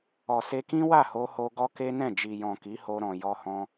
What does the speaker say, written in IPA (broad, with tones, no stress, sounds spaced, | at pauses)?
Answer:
ɔ˨ s e˧ k ĩ˦ w a˦˨ h o˧ h o˧ ɡ ɔ˦ k e˦ n ɛ̃˦˨ d͡ʒ i˨ j ɔ̃˨ k i˨˦ h o˧ ɾ ɔ̃˨ j ɔ˧ h ɔ̃˧